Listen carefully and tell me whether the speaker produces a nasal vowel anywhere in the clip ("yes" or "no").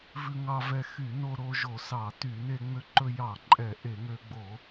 no